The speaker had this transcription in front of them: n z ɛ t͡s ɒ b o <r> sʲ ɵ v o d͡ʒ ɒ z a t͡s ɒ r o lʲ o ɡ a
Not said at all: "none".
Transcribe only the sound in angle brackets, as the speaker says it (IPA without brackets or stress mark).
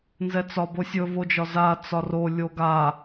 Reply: none